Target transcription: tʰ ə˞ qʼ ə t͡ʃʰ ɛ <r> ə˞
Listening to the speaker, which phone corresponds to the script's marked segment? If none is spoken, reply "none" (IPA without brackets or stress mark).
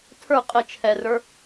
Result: r